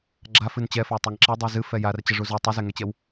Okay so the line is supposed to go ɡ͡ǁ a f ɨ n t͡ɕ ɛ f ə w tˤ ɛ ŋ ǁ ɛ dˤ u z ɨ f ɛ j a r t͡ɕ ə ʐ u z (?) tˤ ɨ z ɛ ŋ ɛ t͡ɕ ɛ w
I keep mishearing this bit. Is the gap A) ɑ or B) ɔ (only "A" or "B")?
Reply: B